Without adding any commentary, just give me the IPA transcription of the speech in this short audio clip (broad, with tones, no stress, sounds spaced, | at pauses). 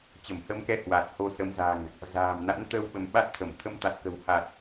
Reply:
t͡ɕ ə˧˩ m h ə˧ m k ɛ˧ h w a˨˩ t̚ h o˧ s ə˨˦ m z a̤˨˩ ŋ | z a̤ː˨˩ m n a̰˧˥ n t̪ ə˧ w ɓ ə˧ m ɓ a˦˥ t̚ t̪ʰ ə˧˩ m t̪ʰ ə˧ m t̪ a˨˩ t̚ k ə̤˨˩ w h a˨˩ t̚